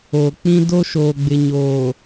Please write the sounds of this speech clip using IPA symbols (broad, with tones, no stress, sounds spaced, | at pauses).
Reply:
o˨ k͡p ĩ˦ d o˦ ʃ oː˨ ɡ͡b ɪ˨ ɲ oː˨